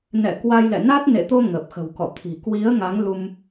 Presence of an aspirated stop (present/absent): present